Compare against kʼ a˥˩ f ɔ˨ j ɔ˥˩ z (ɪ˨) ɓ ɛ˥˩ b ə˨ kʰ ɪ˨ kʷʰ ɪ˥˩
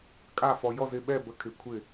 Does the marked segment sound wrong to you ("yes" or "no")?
yes